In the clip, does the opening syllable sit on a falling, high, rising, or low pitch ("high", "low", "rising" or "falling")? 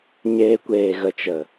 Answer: high